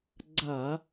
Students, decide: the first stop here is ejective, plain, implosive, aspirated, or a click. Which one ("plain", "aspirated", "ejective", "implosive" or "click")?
click